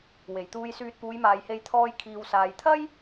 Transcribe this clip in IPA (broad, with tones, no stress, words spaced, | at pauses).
we˨˩jt̪uː˧jsyː˧t̚ puː˨˧jmaː˨jhe˧j t̪ʰɔː˧j kʰiː˨wsaː˨jt̪ʰɐ˥j